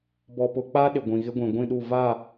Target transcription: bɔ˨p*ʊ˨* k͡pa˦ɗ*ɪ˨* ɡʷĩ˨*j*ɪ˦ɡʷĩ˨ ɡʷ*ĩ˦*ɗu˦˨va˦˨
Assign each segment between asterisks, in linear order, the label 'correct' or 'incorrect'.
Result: correct, correct, incorrect, incorrect

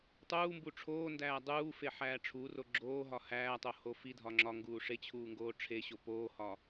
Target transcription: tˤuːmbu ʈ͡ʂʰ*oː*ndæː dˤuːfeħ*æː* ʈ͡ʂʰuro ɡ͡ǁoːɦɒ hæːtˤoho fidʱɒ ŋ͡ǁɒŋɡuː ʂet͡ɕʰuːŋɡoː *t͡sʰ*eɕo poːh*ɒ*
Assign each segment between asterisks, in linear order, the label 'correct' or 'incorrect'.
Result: correct, correct, incorrect, correct

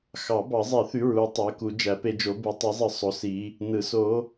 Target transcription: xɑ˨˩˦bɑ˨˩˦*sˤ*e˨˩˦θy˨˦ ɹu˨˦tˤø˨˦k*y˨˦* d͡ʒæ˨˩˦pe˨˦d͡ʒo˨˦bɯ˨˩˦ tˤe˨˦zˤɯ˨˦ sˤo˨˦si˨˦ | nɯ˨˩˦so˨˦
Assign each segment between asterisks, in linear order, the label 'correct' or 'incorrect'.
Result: incorrect, incorrect

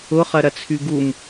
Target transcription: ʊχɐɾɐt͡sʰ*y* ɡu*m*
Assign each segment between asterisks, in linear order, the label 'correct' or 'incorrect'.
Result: correct, correct

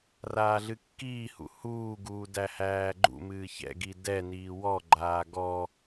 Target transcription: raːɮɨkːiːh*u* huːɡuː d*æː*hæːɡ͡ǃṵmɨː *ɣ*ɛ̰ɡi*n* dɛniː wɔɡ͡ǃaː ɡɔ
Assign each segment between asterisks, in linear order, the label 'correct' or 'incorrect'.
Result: incorrect, incorrect, incorrect, incorrect

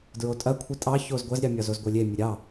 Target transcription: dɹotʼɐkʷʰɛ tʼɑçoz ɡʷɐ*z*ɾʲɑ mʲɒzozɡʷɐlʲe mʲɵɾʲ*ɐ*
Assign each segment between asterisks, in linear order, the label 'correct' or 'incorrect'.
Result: correct, incorrect

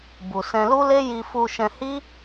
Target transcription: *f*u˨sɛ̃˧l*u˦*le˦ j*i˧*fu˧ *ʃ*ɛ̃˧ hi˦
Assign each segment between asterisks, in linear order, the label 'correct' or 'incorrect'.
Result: incorrect, correct, correct, correct

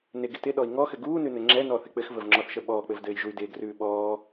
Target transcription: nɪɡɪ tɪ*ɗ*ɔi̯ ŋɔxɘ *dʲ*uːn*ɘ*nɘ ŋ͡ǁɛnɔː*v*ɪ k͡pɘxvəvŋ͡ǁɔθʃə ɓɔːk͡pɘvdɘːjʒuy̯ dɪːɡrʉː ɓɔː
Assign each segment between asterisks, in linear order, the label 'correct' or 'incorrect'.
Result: correct, incorrect, incorrect, incorrect

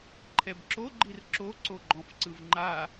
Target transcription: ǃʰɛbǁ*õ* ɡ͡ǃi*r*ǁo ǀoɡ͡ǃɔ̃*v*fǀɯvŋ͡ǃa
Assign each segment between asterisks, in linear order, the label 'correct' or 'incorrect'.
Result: incorrect, correct, incorrect

